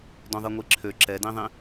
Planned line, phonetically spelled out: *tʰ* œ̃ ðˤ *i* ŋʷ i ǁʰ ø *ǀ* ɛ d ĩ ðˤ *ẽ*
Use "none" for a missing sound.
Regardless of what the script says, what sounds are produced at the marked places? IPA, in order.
d, i, ǁ, ĩ

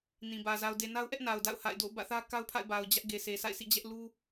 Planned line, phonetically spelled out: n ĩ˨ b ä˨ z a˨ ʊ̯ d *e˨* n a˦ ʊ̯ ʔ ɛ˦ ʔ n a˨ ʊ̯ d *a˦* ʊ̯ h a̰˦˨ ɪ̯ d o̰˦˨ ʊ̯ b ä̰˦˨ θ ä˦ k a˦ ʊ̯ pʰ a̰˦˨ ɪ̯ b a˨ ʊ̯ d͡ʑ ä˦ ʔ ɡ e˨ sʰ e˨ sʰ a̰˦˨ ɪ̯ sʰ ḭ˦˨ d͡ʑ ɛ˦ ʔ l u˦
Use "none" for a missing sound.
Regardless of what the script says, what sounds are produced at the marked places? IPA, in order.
e˨, a̰˦˨

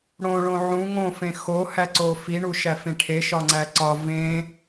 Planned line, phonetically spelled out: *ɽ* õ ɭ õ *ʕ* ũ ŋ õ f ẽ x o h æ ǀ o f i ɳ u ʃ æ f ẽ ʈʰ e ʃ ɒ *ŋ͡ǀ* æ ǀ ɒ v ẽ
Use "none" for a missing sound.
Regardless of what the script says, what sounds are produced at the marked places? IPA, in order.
ɽ, ʕ, ŋ͡ǀ

